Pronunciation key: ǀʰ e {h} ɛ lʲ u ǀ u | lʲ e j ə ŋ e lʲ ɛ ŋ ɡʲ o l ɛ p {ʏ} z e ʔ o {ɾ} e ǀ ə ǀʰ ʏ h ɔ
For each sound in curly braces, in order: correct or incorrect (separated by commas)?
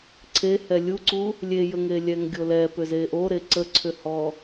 correct, correct, correct